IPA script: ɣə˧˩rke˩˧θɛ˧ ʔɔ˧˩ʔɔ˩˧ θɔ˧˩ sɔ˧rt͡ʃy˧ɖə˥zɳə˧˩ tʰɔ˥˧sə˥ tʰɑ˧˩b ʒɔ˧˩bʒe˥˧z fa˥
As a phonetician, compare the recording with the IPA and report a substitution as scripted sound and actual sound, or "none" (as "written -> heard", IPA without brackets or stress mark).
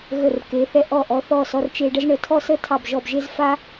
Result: y˧ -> e˧